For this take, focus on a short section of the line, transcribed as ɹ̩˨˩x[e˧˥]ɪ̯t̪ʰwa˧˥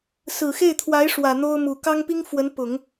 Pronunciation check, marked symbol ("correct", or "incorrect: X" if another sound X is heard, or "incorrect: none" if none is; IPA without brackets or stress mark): incorrect: e˥˩